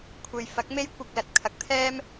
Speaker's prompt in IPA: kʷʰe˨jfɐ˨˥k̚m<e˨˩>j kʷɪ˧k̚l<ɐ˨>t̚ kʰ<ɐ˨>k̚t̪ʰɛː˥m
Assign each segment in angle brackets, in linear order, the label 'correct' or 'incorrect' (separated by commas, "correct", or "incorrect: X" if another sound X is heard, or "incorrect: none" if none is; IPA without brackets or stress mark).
incorrect: e˥, correct, correct